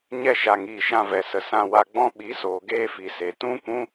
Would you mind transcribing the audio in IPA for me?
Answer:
ɲ ɛ˧ ʃ a˨ ŋ iː˨ ʃ ã˧ v ɛ˨ s ə˨ s ã˧ w a˧ ɡ͡b ɔ̃˦ ɓ i˨˦ s oː˨ ɡ eː˧ f i˨ s e˨ t ũ˦ kʷ ũ˦

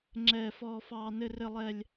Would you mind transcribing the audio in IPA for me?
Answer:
ŋ͡ǁ ɛː˧ f ɔː˧ f ɑː˧ n ɘ˧ r ɘ˧ lˠ ɛ˧ lʲ

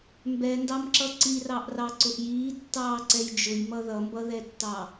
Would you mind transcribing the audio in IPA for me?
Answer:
m b ɛ n d ɑ m ǁ ʌ ǀ i r ɑ ʔ r ɑ ǀ ʊ ʔ j iː tː ɑː ǀ ɛ j d͡ʒ ʊ j m ʌ ð ʌ m b ʌ ð ɛ tː ɑ

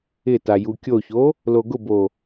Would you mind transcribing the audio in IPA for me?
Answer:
ɪ t a j u kʲ o ç o | l o ɡ ʊ b o

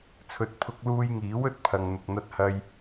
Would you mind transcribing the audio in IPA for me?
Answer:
t͡sʰ ɵ˨ t̚ pʰ ʊ˧ k̚ l uː˧ j ŋ iː˨˥ w ɵ˥ t̚ pʰ ɐ˨ ŋ n̪ ʊ˨ k̚ n̪ ɐ˥ t̚ h ɐ˥ j

